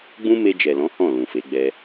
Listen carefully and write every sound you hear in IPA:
ɡ͡bũ˦ me˧d͡ʒɛ˨lɔ̃˨˦ hɔ̃˦˨lũ˨fe˨˦ ɡ͡bɛ˧

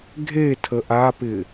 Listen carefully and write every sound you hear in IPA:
ɡʱetʰə ʔapɪ

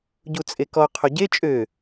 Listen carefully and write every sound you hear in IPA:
ɟut͡sʼekɔ qʰoɟe t͡ʃʼø

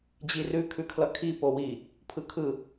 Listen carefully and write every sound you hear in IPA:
d͡ʑirʉ kʰʉkʰlʌkʰi powi | pʰɯkʰɯ

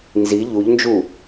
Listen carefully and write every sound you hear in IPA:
nzi ʎuʎnd͡ʒu

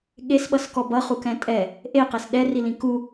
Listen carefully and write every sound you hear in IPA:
ɠesɓʌs kɔbʌχukɛ̃ tʼɛ | ʔeqes ɗɛrilĩ ku

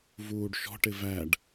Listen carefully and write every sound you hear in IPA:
vuːɖʃɔ̤ʈɪ væɖ

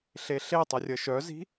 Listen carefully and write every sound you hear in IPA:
ɬeɬetˤə rʲəʃœzi̤

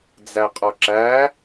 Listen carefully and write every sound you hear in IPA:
d͡zæqʼɔǁæ

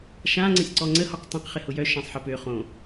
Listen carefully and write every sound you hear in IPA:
ʃãŋ͡ǀə̃sʲ ǀɔŋ͡ǀəhɔq tˤõq χɪhʊjœ ʃãsˤħə pø χõ

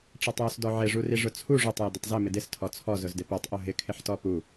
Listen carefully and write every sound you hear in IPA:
ʈ͡ʂatˤjʊsdɔʕɪ ʐuriʐʊt͡sʰu ʐotˤ jʊdʊtˤzɪ mɪdɪs tʰɔt͡sʰɔ zʊzdɪpotˤ ʔoɦɪ kʰɪħtɔpu

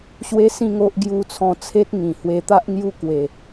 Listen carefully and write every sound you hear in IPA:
ɕwe˦sĩ˥˧ŋo˦ʔ ɡju˧t͡sʰɔ̃˧ t͡sʰe˦t̚ŋĩ˨˩ hwe˧t̪a˦ʔ ŋju˦kwe˨˩

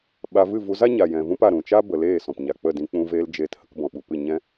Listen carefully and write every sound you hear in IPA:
ɓa˧ vɨ˦˨ vu˧ za˦ɲa˨ jɛ̃˨vũ˦pa˨ ɾũ˨t͡ʃa˦ bə˨leː˦˨ sɔ̃˨pɲa˨k͡pə˦˨dĩ˧ k͡pũ˧veː˧l d͡ʒeː˨t hə˧kbɔ̃˨ɓu˨pɨ˦˨ ɲɛ̃˦

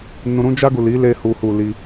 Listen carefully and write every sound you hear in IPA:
nũ˧ɾũ˦ d͡ʒa˧ɡu˨ li˨˦ le˧hu˨hu˨ li˧

